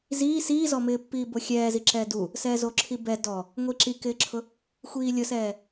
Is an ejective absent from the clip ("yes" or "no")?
yes